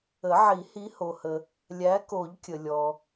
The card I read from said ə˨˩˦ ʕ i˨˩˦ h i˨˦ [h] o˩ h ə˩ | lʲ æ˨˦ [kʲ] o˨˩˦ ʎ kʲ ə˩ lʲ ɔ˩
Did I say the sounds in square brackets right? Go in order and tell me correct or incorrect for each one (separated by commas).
correct, incorrect